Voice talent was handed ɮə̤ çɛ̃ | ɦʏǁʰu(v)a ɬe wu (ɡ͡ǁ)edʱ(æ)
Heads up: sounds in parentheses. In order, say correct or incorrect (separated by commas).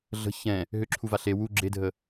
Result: correct, correct, incorrect